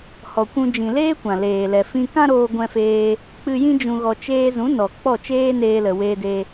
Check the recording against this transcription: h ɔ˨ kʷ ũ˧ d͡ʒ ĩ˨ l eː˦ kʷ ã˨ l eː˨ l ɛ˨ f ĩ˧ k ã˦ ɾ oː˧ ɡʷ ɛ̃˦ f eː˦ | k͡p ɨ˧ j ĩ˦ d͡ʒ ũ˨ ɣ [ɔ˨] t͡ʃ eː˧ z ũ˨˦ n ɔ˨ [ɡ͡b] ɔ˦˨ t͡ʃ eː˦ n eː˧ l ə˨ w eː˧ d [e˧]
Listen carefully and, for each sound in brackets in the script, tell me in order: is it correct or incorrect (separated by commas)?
correct, incorrect, correct